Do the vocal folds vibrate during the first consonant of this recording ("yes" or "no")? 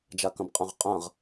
yes